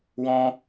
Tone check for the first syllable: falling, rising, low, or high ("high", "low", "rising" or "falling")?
high